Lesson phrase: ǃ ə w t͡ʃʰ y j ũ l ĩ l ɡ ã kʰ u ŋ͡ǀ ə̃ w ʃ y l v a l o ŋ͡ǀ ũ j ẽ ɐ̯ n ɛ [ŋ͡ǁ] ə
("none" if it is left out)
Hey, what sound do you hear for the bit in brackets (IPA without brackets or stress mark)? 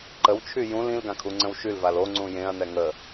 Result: ŋ